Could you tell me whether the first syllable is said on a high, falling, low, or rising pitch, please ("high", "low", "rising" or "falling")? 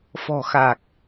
low